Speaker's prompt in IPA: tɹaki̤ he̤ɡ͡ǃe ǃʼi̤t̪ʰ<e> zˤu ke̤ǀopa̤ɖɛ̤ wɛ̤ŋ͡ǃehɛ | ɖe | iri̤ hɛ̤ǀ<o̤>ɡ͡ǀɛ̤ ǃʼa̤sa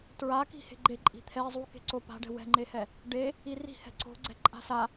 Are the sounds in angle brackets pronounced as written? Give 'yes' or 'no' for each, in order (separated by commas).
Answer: no, yes